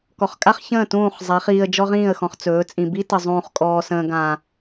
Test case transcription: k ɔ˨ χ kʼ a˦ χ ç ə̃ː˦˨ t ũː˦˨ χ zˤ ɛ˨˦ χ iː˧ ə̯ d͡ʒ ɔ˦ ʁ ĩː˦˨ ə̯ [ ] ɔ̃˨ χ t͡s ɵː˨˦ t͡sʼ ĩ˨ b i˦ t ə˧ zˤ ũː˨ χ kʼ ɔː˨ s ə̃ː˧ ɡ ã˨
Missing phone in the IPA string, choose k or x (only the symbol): x